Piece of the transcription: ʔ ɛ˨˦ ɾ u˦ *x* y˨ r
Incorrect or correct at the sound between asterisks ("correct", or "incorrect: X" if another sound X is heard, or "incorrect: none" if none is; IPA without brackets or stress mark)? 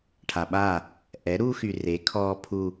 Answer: correct